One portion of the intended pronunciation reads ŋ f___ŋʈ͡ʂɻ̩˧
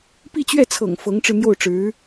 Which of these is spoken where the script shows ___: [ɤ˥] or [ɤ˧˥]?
ɤ˧˥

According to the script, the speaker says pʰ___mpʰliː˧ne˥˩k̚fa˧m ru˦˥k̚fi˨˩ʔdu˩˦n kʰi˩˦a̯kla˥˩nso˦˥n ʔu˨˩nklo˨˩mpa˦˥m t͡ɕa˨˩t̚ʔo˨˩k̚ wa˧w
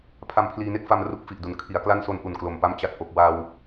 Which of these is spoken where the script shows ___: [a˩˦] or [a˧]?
a˧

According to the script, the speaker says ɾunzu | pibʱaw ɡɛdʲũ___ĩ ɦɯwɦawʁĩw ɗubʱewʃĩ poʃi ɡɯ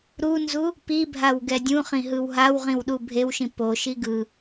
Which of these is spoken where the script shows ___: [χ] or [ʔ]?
χ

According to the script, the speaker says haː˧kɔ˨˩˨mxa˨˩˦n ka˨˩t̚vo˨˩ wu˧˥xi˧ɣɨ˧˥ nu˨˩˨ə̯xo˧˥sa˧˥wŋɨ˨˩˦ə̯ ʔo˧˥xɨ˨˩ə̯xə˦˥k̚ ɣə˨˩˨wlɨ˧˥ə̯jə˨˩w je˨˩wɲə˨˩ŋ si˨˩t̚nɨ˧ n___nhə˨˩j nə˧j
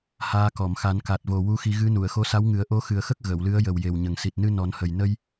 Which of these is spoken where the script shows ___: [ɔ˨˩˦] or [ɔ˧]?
ɔ˨˩˦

